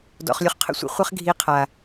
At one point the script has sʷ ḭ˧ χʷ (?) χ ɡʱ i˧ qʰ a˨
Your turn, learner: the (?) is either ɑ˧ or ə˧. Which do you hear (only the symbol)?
ə˧